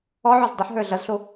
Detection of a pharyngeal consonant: present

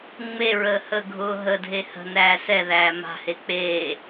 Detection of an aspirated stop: absent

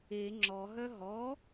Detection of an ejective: absent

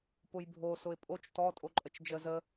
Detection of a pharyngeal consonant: absent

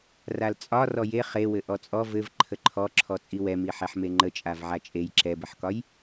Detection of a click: present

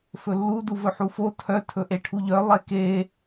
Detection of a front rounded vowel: present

